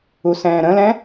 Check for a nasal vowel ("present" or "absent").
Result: present